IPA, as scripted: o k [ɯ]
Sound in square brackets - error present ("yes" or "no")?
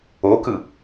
no